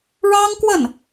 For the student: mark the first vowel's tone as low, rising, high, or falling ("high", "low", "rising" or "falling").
high